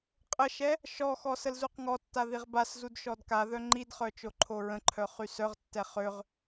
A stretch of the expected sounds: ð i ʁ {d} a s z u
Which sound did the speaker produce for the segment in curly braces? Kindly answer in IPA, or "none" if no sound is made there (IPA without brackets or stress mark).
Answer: b